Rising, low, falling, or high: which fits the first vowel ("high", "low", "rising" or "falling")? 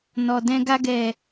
low